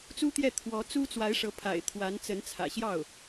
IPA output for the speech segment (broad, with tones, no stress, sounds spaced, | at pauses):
t͡s u˥ t̪ j ɛ˥˩ t̪ʰ w ɔ˧˥ t͡s u˥ t͡s w a˧˥ ɪ̯ ʂ ɤ˧˥ pʰ a̰˨˩ ɪ̯ t̪ʰ w a˧˥ n t͡s ə˧˥ n t͡sʰ ä̰˨˩ ɕ j ɑ˥˩ ʊ̯